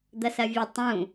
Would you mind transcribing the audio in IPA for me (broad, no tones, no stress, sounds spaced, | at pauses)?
d̪ ɐ s ɐ vʲ ɨ tˤ ũ